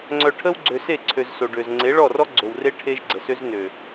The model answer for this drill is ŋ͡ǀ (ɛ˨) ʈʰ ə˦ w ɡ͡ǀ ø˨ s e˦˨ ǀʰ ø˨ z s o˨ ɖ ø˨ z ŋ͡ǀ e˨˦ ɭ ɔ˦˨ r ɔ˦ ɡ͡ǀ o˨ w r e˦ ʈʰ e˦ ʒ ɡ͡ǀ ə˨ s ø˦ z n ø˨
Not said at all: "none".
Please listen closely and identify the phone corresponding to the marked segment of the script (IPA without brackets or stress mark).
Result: œ˨